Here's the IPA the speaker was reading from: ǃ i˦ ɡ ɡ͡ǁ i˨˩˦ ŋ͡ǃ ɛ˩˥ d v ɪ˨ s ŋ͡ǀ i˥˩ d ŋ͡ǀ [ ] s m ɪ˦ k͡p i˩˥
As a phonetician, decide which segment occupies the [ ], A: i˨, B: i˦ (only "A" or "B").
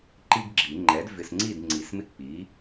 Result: A